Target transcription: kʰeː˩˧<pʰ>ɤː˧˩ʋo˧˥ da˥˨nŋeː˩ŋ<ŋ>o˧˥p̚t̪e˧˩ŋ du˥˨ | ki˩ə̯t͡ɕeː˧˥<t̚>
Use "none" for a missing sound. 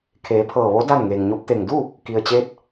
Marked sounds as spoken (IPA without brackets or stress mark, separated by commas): pʰ, ɲ, t̚